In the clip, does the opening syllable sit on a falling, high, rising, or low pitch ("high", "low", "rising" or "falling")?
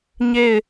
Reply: falling